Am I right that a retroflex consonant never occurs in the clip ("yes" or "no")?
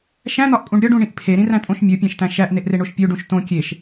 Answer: no